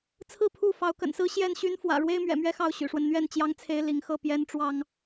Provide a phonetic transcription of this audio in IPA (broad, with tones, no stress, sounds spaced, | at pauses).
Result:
t͡sʰ ɹ̩˥˨ pʰ u˥˨ f ɑ˨˦ ʊ̯ k ə̰˨˩ n s ɹ̩˦ ɕ j ɛ˥˨ n ɕ y˦ n f w ä̰˨˩ ɻ w e˦ ɪ̯ m ɥ ɛ̰˨˩ m ɥ ɛ˦ x ɑ˥˨ ʊ̯ ɕ y̰˨˩ ʂ w ə˦ n n̪ ɥ ɛ˥˨ n t͡ɕ j ɑ˦ ŋ t͡sʰ e˦ ɪ̯ l i˨˦ ŋ x ɤ˥˨ p j ɛ˦ n ʈ͡ʂ w ɑ˦ ŋ